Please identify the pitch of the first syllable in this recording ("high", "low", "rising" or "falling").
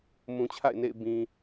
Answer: low